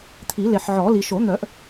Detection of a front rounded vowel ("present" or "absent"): present